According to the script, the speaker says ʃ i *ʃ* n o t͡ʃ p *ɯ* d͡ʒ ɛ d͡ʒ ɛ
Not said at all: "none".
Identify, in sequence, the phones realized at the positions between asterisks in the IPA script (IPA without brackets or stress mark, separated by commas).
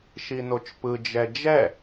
none, ɯ